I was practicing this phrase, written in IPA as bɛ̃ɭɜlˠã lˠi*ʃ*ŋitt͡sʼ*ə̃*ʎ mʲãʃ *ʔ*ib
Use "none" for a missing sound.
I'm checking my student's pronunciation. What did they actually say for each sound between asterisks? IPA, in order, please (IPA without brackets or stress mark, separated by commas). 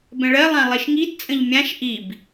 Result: ʃ, ə̃, ʔ